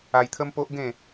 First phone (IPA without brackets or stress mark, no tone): a